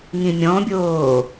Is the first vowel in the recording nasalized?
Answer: yes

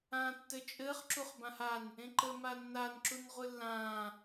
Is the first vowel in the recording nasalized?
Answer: yes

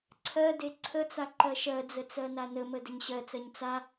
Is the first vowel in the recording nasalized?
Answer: no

